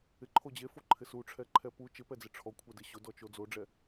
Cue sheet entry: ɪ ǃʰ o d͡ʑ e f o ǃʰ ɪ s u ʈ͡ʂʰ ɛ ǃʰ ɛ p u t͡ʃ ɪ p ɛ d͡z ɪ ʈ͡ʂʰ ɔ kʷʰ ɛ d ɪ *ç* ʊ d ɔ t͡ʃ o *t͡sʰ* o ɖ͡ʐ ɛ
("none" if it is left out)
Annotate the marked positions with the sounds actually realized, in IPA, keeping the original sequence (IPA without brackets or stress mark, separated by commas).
ɕ, d͡z